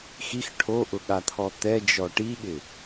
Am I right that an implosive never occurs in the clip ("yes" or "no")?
no